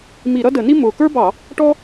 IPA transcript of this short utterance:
m i˧˩˧ ɾ ʌ˥ d ə˧˩˧ n i˥ m ʊː˨˩ k ə˞˥ b ɑ˧˩˧ | ʈ ɔ˥

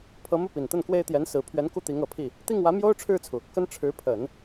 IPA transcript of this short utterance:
pʰ ɤ˧˥ m u˥˩ p i˨˩ n t̪ ə˥˩ n k w e˥ ɪ̯ t̪ j ɛ˧˥ n s ɹ̩˨˩ pʰ ɥ ɛ˧˥ n k u˥˩ t̪ i˧˥ ŋ ɤ˨˩ pʰ i˥˩ | t̪ i˥˩ ŋ w ä˧˥ m j o˥ ʊ̯ ʈ͡ʂʰ ɻ̩˥˩ t͡sʰ u˩ | k ə˥ n ʈ͡ʂʰ ɻ̩˧˥ pʰ ə˨˩˦ n

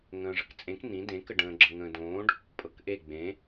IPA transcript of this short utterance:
ŋ ə̃ː ʐ ə k t͡sʼ ẽ k n̪ ĩ d ẽ k ə ɖ ə̃ː ɡ͡ǁ ɤ ŋ ə̃ː d õː ɖ | pʼ ɤ k ʔ e ɡ͡b ẽ

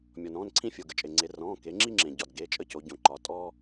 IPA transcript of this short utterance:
mʲ ɔ˩ n ɔ̃ː˩˧˩ n ǀʰ ĩ˦ fʲ o˩ ɡ ə˩˧˩ t͡ʃʼ e˩ ŋ͡ǀ e˩˧ r ɔ̃ː˩˧˩ k e˩˧ ŋ͡ǁ i˦ ŋ͡ǁ ẽ˩ ɟ ɒ˩ d ɡ e˩˧˩ t͡ʃʼ ə˦ c o˩˧ ɟ õ˩ ǃ ɒ˩˧ tʼ ɔ˦

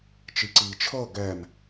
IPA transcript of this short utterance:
t͡ʃ i ǀ iː t͡ʃʰ ɤ ɡ ɛ m

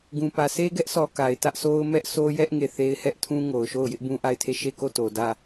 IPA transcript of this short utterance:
ɡ ũ˨ p ä˨ s e˦ ɡ ɛ˦ ʔ sʰ ɔ˨ k a˨ ɪ̯ t ä˦ ʔ sʰ o˦ ʊ̯ m ɛ˦ ʔ s o˦ j ɛ˦ ʔ ŋ e˦˨ θ e˦ ɪ̯ h ɛ˦ ʔ tʰ ũ˦ ŋ o˨ ʊ̯ ʃ o˦˨ ʊ̯ j ɪ˦ ʔ b ũ˦ ʔ a˦˨ ɪ̯ tʰ e˦˨ ʃ e˦˨ k o˦˨ t o˨ d ä˦˨

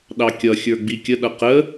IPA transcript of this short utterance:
ɗ ɑ kʲ ʌ xʲ ə˞ ɡ͡b i kʲ ə ɗ ʌ q ə

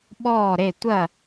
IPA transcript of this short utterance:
ɓ ɔː˥˧ ɾ e˥˧ tʷ ɐ˥˧

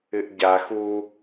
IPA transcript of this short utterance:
ɨ ʔ ɟ a x u

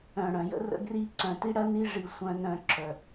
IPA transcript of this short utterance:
œ̃˨ ɽ œ̃˨ j ə̰˦ r ə̰˦ ɡ r i˦ ǀ œ̃˨ t i˦ ɽ ɐ˦ n i˦ ʐ i˨ sʷ œ̃˦ n œ̃˨ ǁ œ˨

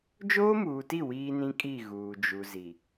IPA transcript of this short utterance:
d͡ʒ oː˦ m uː˨ t i˦˨ w iː˦ n ĩ˦ kʼ i˦˨ ɣ uː˨ d͡ʒ u˨ z i˨

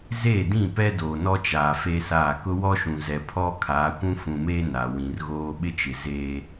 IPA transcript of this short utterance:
z eː˦˨ d ĩ˦˨ p ɛ˦ d oː˨ n ɔ˦ t͡ʃ aː˨ f e˦ s aː˦˨ k ʊ˦ w ɔ˦ ʃ ũ˨ z ɛ˨ pʰ ɔ˦ kʰ aː˨˦ kʷ ũ˦ f ũ˨ m eː˦ n a˨ w ĩ˨ r ɣ oː˦ ɓ ɪ˦ t͡ʃ ɪ˨ z eː˦

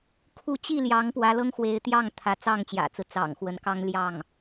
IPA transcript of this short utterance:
kʰ u˥˧ t͡ɕ i˥˩ l j ɑ˧˥ ŋ p w ä˧˥ l ɤ˥ ŋ x w e˧˥ ɪ̯ t̪ j ɑ˥˩ ŋ t̪ʰ ä˧˥ t͡s ɑ˥˩ ŋ t͡ɕ j ä̰˨˩ t͡s ɹ̩˦ t͡s ɑ̰˨˩ ŋ x w ə˧˥ n k ɑ˥ ŋ l j ɑ˥˩ ŋ

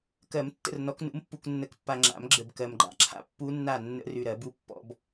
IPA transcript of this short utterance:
k ɜ˨˩˦ m tː ə̰˥˨ r n ɔ˨˦ k n ṵ˨˦ m pː u˨ k nː ə˨˩˦ k pː a˨ ŋ͡ǁ a̰˨˩˦ m ɡ͡ǁ ə˨ b k ɜ˨ m ɡ͡ǃ a̰˦˥ ǁʰ a̰˨ pː u˦˥ nː a˥˨ nː ə̰˦˥ r ʉ˨ ɾ ɜ˨˩˦ b u˦˥ pː ɔ̰˨˦ b

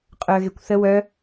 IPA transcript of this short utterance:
qʼ œ ɣ e kʷ θ ə w œ

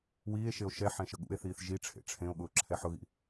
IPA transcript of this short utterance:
w iː e̯ ʃ e o̯ ʃ ɛ ħ ɛ̃ ʃ ə ɠ ṵ e̯ θ iː θ ʒ i ʈ͡ʂʰ ḛ ʈ͡ʂʰ ẽ o̯ ɠ ʊː ǁʰ ɛ ħ ʊ ɣ ḭ

